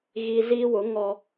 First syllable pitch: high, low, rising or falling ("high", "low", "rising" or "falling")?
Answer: low